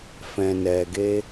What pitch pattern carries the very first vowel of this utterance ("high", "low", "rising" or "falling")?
low